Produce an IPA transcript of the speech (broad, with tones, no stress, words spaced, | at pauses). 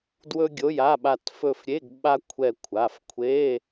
dwɵ˥ɡʲo˧˥˧ja˧˥˧ɓa˦˨t fɵ˦˨fɾʲe˧˥˧ɡ ɓa˥kʷʰɛ˦˨ kʷʰa˩˧˩fkʷʰe˧˥˧